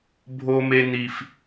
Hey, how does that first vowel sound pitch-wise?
high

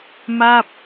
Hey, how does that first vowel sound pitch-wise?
falling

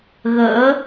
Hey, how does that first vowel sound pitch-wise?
rising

